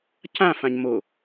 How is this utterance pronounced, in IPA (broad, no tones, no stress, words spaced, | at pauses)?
cãfãɲ mo